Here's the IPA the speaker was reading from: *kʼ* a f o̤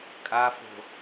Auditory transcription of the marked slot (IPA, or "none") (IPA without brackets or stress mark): kʼ